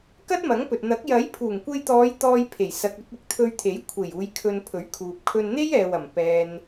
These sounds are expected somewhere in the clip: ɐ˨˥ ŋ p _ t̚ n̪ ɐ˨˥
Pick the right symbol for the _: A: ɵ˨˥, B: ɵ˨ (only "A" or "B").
B